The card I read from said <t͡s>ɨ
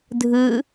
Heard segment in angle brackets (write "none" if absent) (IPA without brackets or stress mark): dʱ